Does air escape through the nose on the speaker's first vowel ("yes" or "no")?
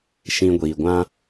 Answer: yes